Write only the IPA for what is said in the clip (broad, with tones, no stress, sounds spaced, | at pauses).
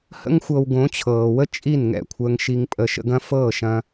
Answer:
h ə̰˦ ŋ xʷ ɤ˧ w ɡ õ˨˦ t͡ɕʰ ɤː˨ w ə˦ t͡ʃʼ i˦˨ n ŋ ɛ̰˦˨ kʷʰ əː˧ ŋ ʃ i˧ ŋ pʼ əː˧ ʃ ə̰˧ ɡ ɐ̃˦ f ɤː˦˨ ʃ ɐ̃˧